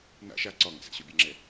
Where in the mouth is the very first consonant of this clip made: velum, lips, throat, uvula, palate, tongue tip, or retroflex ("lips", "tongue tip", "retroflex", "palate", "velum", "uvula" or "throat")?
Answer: tongue tip